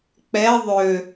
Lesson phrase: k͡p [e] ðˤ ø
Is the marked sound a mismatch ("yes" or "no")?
yes